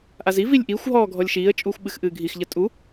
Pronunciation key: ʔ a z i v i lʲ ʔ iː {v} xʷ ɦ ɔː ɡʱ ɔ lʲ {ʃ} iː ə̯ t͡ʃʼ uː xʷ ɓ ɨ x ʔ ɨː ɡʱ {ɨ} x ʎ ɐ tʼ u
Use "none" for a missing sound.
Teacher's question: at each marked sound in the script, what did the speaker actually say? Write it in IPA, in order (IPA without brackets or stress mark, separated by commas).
none, ʃ, i